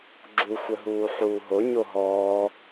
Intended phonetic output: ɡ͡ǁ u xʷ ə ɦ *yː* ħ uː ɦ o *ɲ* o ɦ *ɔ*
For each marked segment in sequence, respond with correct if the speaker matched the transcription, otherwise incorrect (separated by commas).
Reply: incorrect, correct, incorrect